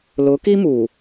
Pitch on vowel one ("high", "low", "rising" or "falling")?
rising